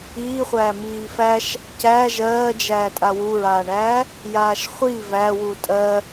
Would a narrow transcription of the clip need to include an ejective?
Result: yes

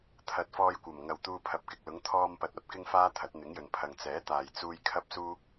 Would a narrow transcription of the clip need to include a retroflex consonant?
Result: no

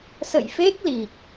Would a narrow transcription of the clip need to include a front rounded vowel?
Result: no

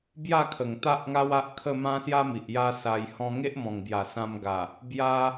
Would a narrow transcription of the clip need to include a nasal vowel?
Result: yes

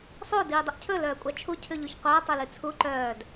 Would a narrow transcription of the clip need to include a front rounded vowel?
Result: yes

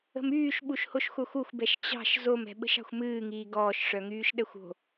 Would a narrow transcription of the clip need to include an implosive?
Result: yes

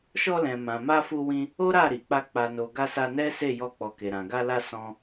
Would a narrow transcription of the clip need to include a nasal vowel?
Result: yes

